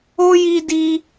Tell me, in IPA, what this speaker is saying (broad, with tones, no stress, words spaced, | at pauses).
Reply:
o˦ji˧di˧